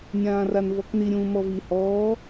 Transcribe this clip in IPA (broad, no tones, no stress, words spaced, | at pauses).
nʲãːranvɔkni ɾʲũːmɔvi hɔː